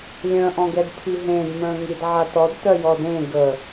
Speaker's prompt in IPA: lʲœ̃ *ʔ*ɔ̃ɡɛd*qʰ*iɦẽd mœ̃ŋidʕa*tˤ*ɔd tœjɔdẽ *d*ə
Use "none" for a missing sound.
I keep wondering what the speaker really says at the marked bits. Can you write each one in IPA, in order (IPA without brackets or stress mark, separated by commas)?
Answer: ʔ, pʰ, t, ɡ